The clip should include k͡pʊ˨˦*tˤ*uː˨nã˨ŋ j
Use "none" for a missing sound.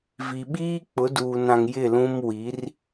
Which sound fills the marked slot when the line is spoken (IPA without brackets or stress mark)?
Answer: d